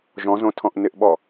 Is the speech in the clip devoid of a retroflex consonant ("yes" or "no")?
yes